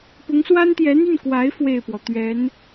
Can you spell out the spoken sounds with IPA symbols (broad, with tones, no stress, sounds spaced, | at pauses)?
p ʊ˧˥ ŋ s w a˥ n t̪ j ɛ˧˥ n̪ y˥˩ n k w a˧˥ ɪ̯ f w e˥˩ ɪ̯ p w ɔ˩ t̪ ɥ ɛ˧˥ n